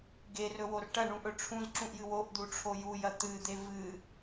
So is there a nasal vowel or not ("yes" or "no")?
yes